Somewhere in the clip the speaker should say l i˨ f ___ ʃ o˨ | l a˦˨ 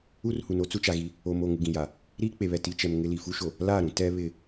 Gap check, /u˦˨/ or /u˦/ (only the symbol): u˦